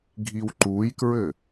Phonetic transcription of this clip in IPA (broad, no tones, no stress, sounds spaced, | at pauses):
ɡʱ i w ǃ u j k ɹ ɘ